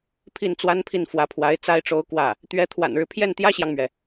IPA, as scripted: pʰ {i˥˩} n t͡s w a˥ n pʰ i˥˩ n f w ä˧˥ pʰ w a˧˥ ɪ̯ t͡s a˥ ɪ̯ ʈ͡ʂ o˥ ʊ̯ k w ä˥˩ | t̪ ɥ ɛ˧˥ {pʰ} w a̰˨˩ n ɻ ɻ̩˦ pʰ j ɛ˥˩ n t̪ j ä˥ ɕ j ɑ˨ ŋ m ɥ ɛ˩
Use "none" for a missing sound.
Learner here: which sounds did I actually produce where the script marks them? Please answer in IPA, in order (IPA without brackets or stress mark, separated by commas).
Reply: i˥˩, t̪ʰ